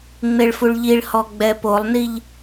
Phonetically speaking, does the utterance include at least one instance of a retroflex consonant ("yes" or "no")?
yes